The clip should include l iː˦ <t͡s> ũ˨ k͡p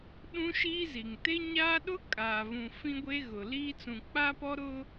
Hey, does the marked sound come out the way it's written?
yes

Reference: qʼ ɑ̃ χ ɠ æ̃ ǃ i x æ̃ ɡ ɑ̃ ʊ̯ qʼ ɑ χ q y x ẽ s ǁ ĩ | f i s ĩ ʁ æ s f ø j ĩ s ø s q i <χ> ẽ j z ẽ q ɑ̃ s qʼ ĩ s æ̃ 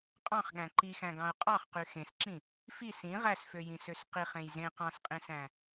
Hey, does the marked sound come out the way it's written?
yes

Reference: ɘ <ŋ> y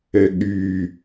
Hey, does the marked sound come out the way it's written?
no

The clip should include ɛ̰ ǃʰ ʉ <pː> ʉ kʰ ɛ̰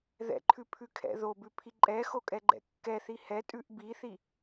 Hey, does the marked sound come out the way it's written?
no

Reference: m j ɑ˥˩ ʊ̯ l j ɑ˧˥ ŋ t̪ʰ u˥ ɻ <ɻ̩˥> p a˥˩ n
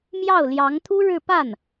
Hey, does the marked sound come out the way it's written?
no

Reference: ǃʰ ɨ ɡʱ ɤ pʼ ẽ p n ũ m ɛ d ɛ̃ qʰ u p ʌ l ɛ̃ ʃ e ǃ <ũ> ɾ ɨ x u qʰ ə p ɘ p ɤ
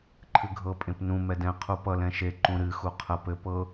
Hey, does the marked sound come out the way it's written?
yes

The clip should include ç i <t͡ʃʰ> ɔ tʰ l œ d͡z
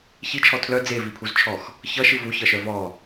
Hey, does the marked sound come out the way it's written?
yes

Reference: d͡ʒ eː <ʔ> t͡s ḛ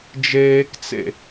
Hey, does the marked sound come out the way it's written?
no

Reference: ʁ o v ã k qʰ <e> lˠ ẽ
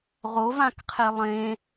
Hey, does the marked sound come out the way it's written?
yes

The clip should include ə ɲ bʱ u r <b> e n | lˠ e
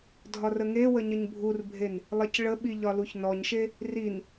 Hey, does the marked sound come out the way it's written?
no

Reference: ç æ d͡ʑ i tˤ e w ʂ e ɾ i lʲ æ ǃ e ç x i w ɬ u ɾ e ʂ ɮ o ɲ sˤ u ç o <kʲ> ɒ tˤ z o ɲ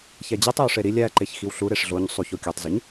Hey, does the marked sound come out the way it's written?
yes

